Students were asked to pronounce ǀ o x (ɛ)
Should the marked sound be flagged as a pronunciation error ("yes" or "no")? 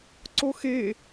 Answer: yes